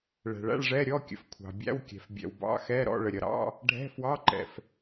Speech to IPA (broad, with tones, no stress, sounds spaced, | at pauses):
ɭ ɛ̤˩ ɭ æ̰˧˥˧ ɭ ʐ ɛ˧˥˧ ɾʲ ɔ˧˥˧ kʲ ə̰˩ f kʷʰ ɑ̤˩ bʲ æ̰˧˥˧ w kʲ ɛ̤˩ f bʲ ɛ̰˩ w b ɑ̰˧˥˧ x ɛ˧˥˧ ɾ ɔ̰˧˥˧ ɭ ə˩ ɾʲ ʌ˩ ɾ ɑ̰˧˥˧ | ɖʱ ɛ̤˧˥˧ f w ɑ˧˥˧ ǃ ɛ̰˩ f